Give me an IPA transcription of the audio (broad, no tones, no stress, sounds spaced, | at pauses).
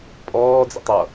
pʼ ɔː d͡z ɛ̰ tˤ ʌ